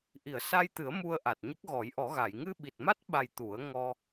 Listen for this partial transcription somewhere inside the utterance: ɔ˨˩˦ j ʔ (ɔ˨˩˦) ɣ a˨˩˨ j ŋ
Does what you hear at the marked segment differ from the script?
no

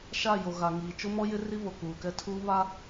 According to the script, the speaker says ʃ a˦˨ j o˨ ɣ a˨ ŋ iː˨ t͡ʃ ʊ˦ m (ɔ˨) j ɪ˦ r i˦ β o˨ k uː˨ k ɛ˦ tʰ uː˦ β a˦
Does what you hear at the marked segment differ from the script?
yes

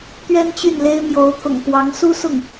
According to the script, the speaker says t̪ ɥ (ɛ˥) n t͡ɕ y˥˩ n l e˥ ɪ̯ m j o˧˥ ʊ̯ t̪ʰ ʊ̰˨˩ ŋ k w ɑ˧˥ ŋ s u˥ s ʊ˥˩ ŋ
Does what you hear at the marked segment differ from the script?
no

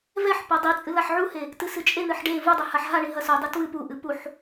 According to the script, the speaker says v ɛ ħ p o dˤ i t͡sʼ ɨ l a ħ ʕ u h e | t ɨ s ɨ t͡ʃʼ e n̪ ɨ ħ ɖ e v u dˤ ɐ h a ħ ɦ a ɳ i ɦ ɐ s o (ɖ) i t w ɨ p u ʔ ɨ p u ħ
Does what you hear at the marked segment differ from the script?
yes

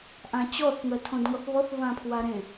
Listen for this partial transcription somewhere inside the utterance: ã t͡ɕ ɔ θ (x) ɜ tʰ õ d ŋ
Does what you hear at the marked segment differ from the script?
yes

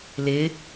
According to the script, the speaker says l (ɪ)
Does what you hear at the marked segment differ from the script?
no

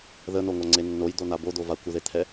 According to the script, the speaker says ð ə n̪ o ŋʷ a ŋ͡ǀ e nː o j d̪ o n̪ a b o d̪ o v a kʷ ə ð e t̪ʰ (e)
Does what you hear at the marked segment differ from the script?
yes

